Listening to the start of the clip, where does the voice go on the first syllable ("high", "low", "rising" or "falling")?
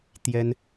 high